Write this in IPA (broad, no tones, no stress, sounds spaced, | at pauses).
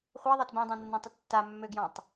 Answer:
χʷ ɛ ðˤ ɛ t b ɛ̃ dˤ ã nː ã tˤ ə tː a mː ø ɡ j ɔ̃ tˤ